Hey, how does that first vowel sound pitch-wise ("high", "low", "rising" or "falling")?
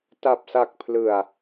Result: low